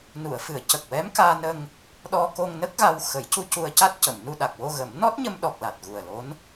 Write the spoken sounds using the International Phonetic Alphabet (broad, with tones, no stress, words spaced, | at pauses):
nu˨˩˨ə̯fɨ˨˩˦ə̯ cə˨˩k̚wɛ˧˥mkaː˧nə˧ŋ | ɗɔ˧ko˧ŋ nə˦˥k̚ɣa˧wxə˨˩˦jcu˧ cu˧ə̯ca˦˥t̚cə˨˩˨mnu˧ ɗa˨˩k̚wo˧ɣə˨˩˦m nɔ˦˥t̚ɲə˧mɗɔ˨˩k̚ la˨˩t̚ɣu˨˩ə̯lo˧˥n